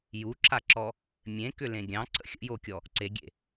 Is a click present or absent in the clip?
present